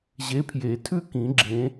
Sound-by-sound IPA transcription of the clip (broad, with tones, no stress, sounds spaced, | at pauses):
ʑ e˨˥ pʰ j e˨˩˦ tʰ ʉ˥˧ k ĩ˨˩˦ ɡ͡ǁ ẽ˨˥